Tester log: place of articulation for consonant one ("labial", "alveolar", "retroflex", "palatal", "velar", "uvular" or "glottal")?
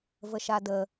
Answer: labial